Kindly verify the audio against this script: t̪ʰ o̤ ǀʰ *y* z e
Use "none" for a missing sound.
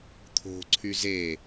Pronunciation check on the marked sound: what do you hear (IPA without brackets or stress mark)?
y